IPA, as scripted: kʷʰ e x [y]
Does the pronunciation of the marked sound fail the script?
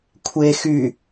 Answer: no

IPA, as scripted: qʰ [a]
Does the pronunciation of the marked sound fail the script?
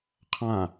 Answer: yes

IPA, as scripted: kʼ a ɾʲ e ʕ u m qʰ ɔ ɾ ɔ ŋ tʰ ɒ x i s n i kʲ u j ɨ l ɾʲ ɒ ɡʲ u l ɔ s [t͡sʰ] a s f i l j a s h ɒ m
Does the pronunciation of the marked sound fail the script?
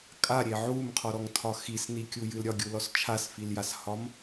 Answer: yes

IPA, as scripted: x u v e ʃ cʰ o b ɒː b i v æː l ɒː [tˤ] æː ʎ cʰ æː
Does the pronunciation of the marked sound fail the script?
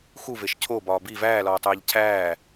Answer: no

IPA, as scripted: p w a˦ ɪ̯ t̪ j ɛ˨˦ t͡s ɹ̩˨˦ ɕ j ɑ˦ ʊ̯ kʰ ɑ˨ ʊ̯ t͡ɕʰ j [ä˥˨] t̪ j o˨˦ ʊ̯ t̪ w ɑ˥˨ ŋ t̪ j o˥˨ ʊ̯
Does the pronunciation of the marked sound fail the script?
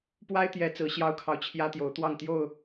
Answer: yes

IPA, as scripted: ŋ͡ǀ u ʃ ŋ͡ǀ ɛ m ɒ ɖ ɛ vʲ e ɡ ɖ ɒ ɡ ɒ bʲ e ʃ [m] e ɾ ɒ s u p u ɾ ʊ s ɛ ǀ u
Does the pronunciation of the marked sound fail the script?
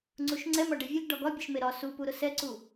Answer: no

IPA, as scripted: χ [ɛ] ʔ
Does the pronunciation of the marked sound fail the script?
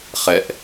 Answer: no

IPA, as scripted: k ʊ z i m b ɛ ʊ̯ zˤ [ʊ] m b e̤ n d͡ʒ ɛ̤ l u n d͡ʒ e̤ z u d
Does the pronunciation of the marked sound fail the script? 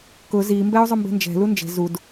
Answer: no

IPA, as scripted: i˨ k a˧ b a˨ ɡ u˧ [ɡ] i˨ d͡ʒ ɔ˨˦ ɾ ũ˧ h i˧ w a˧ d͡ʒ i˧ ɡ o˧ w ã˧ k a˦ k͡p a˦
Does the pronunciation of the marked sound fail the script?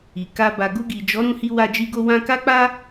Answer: no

